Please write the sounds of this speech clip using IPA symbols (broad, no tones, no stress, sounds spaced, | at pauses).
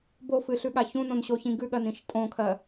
b o f ɨ ɬ ʉ ɠ a ç ũ n õ n ɕ o ç ĩ ɡ ʉ ɠ ɜ n ĩ ʃ tʼ õ kʰ ɜ